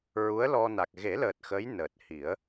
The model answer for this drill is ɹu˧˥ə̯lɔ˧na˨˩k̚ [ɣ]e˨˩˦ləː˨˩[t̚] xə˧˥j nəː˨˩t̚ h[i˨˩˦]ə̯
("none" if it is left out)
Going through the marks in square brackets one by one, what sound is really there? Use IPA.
ɣ, t̚, i˨˩˦

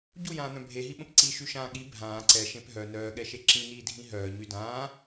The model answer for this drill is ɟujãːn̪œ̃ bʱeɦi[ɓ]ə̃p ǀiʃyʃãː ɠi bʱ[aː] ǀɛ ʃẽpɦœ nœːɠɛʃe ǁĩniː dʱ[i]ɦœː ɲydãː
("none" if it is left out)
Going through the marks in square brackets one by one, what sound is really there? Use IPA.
ɓ, ãː, ĩ

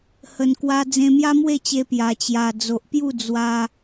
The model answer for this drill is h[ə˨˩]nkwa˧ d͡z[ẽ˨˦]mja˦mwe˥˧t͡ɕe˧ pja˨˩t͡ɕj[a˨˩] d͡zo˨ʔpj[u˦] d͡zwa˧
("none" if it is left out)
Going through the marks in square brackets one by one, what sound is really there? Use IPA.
ə˨˩, ẽ˧, a˨˩, u˥˧

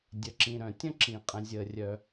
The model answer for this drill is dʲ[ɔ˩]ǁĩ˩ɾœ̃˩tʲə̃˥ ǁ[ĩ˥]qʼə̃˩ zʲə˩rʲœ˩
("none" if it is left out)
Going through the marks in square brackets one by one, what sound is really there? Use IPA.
ə˩, ĩ˩

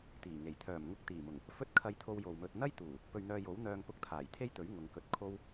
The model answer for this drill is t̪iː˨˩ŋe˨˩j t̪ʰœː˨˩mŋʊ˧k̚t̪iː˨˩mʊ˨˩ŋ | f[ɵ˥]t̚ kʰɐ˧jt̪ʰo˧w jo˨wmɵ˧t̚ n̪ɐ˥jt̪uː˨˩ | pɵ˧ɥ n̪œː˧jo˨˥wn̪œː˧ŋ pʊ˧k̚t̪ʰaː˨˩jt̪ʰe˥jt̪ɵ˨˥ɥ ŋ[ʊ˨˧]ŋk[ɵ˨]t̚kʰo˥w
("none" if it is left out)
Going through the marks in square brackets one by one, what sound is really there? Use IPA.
ɵ˥, ʊ˨˧, ɵ˧

